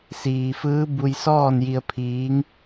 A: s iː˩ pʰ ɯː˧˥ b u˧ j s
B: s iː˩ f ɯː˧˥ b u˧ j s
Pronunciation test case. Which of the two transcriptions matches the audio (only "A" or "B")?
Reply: B